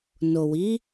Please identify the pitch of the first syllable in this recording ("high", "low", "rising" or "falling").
low